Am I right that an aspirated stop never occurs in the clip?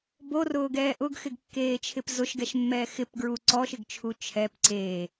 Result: no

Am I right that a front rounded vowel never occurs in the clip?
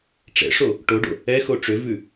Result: no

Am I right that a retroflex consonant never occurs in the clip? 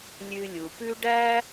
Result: no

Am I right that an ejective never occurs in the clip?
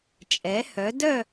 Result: no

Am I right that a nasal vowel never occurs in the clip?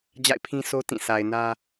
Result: no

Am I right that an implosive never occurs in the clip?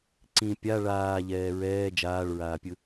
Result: yes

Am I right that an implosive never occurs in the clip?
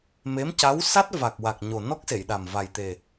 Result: no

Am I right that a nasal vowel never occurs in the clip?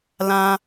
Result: no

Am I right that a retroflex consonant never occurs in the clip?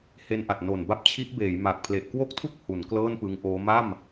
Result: yes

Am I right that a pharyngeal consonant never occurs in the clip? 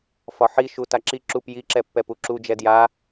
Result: no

